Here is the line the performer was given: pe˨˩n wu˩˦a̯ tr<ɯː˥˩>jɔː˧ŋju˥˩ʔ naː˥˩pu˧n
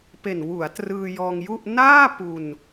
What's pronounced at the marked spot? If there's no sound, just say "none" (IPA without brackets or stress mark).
ɯː˧